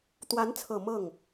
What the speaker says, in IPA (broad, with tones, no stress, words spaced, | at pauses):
t̪wa˧˥nt͡sʰɤ˨˩ mɤ˥˩ŋ